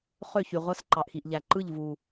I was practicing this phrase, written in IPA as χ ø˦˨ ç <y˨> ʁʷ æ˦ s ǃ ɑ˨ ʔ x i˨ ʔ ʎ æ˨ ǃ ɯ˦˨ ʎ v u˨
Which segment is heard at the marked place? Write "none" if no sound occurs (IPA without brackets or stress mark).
y˨